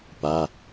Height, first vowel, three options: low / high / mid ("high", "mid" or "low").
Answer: low